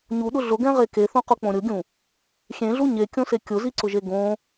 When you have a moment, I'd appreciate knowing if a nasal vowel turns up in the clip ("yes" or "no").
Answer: yes